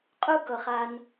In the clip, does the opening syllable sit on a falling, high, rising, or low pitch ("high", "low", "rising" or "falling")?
high